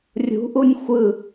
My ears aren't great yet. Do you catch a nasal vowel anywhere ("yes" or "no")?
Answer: no